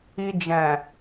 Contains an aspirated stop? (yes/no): no